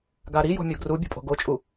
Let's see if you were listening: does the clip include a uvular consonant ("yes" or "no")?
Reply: no